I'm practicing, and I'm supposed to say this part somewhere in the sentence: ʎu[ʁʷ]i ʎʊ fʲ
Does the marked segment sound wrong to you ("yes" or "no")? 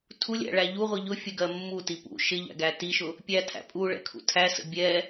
no